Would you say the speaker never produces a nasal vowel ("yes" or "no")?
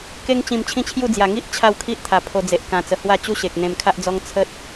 no